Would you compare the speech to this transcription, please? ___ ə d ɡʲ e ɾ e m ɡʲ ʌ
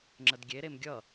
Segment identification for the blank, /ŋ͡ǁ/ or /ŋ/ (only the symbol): ŋ͡ǁ